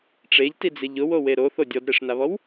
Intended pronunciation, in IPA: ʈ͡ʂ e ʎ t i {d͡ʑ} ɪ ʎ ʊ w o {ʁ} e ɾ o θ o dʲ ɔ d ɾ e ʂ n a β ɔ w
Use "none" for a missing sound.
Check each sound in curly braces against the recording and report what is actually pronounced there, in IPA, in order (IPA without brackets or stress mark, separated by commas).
d͡z, w